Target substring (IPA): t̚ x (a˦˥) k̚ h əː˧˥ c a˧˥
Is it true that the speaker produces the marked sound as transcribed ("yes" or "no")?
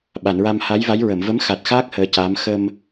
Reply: no